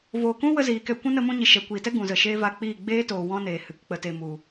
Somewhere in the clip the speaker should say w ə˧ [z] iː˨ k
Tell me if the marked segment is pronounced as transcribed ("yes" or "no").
yes